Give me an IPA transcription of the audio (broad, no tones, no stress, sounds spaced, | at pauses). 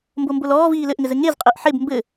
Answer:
m b o m b o l ɔː v iː l ɘ ʔ ŋ ɘ z ɘ ŋ e z qʼ e ʔ ħ e b m b ɘ